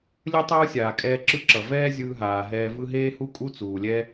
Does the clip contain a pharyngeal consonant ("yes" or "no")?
no